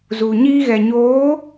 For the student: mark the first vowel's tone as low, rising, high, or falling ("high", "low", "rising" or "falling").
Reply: low